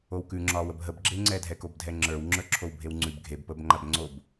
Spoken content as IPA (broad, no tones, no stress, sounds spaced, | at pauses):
o w k ʉ ŋ͡ǁ ɒː w ə b ɦ ə b ɡ͡ǁ e ŋ͡ǀ ɛ dʱ ɛ k o b dʱ ɛ ŋ͡ǁ ə˞ w ŋ͡ǁ ə˞ ǁʰ o w bʱ e w ŋ͡ǀ ʉ b ɡʱ e b p əː b ŋ͡ǃ a b ŋ͡ǀ o b